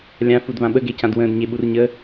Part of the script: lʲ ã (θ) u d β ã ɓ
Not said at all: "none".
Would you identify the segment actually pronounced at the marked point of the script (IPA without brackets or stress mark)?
f